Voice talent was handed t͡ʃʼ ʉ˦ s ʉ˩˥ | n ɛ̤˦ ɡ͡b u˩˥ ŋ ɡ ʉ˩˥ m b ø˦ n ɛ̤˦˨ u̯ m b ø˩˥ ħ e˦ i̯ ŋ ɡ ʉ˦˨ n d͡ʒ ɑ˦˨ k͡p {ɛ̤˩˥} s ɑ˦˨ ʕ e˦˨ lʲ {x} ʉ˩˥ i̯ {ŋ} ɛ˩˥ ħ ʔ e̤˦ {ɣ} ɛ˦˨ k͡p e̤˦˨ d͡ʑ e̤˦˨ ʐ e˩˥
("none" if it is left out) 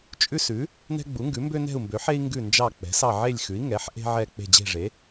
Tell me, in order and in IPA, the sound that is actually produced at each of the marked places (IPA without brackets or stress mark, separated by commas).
ɛ̤˩˥, x, ŋ, ʕ